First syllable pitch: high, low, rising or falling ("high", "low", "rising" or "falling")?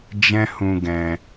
high